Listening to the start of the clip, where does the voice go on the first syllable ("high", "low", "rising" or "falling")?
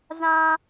low